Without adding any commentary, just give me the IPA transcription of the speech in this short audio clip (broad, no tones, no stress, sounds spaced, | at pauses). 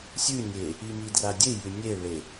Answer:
sʲ ʉ nʲ e | i m i d r a dʲ e j ʉ nʲ e ɭ e